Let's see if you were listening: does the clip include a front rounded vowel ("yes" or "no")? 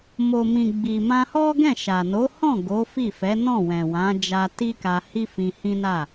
no